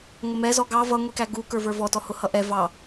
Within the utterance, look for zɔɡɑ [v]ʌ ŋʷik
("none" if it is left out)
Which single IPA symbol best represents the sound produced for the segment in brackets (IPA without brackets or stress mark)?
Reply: v